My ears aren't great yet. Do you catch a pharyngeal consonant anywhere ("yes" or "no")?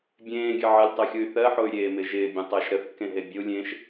yes